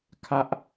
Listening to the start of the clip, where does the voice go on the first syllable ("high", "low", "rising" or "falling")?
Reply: high